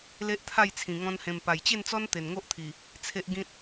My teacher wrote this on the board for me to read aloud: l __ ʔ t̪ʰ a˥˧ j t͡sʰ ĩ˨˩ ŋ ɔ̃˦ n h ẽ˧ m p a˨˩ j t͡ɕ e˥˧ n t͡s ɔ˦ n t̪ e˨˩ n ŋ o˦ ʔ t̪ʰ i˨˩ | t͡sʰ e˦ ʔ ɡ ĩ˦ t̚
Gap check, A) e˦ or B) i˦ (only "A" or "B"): A